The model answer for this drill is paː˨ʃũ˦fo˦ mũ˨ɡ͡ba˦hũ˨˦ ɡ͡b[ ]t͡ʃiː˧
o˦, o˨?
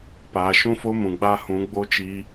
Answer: o˦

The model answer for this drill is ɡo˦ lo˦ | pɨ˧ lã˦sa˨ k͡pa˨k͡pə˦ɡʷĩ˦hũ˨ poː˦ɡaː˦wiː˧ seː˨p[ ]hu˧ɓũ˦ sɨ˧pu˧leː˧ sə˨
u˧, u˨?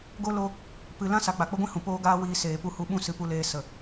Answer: u˧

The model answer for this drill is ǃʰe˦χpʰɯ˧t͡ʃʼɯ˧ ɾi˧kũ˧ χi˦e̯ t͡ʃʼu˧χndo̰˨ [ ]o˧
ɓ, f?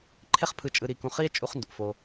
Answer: f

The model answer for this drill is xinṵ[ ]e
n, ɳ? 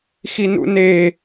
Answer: n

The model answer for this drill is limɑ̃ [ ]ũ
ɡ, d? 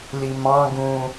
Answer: ɡ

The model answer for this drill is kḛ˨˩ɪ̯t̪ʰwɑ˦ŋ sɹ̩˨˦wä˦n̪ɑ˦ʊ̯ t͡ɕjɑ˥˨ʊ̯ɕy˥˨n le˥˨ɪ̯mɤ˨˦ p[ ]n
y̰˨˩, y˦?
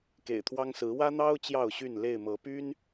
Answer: y˦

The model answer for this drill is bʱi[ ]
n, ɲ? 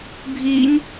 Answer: ɲ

